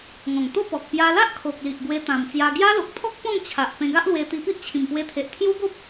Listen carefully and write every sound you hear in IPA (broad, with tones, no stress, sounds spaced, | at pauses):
ŋ ɔ̃˨˩ ŋ t̪ o˥˧ p ɔ˨ k̚ p j a˧ l a˦ ʔ kʰ o˨ k̚ l i˨ ʔ ɡ w e˧ t̪ ã˨˩ m t͡s j a˧ ɡ j a˦ l o˨ k̚ t̪ʰ ɔ˦ k̚ p ɔ̃˥˧ ŋ t͡ɕʰ a˨ ʔ p ẽ˧ ɡ a˦ ʔ l w e˧ t̪ i˧ p i˦ ʔ t͡ɕʰ ĩ˨˩ m p w e˧ t̪ʰ e˨ ʔ t̪ʰ j u˦ ɡ o˦ p̚